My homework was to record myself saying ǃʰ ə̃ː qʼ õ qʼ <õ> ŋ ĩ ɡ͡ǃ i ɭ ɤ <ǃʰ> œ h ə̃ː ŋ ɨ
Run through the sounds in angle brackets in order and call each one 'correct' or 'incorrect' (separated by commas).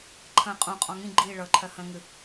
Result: incorrect, correct